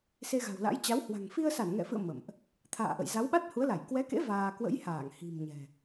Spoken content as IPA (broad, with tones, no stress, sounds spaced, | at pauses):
s e˧ ɣ a̤˨˩ w l a̰˧˥ j t͡ɕ a˨˦ w h w a̤˨˩ ŋ f i˧ ə̯ s a˧˩ n ŋ ɛ̰˧˨ f ɨ̰˧˨ ə̯ m ə̰˧˨ m ʔ | t̪ʰ a̰ː˧˨ ʔ ə̰˧˨ j z a˨˦ w ɓ a˦˥ t̚ h u˨˦ ə̯ l a˧˩ j k w ɛ˨˦ k ḛ˧˥ v aː˧ k w ə̰˧˥ j h aː˧˩ ŋ h i̤˨˩ m ɲ ɛ̤˨˩